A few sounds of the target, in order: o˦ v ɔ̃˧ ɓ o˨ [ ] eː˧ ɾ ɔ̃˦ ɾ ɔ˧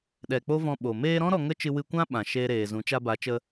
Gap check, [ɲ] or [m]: m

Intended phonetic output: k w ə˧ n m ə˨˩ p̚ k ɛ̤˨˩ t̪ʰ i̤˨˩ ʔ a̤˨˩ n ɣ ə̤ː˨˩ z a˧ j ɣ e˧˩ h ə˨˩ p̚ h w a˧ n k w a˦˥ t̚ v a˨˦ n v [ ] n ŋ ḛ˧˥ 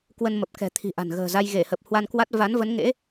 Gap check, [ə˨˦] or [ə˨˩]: ə˨˦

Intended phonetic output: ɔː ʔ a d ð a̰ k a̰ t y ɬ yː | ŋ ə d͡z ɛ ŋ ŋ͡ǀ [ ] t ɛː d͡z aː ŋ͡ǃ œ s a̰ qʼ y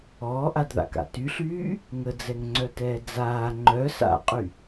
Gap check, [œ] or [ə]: œ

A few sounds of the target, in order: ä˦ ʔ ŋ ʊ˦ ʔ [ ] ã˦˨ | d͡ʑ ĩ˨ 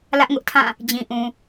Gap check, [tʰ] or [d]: tʰ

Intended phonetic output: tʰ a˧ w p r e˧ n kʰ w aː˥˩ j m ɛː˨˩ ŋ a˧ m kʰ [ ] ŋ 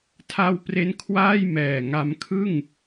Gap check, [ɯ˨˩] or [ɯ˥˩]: ɯ˥˩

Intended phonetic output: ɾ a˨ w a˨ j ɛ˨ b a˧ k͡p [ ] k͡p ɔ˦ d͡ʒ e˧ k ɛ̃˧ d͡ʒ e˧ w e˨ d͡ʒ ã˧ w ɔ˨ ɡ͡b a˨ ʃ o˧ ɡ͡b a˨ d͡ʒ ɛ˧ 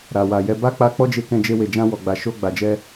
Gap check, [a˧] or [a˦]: a˧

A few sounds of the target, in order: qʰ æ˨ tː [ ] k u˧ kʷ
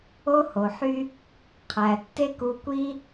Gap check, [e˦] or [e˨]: e˦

